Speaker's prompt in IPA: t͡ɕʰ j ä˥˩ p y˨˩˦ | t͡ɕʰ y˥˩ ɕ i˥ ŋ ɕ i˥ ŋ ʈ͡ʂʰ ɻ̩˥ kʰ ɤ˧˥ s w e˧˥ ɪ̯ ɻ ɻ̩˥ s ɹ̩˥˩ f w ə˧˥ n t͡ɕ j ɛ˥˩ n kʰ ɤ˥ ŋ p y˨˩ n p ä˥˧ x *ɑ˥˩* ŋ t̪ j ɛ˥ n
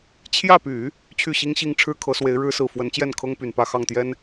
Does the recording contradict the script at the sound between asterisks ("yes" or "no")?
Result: no